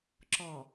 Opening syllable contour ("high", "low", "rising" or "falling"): low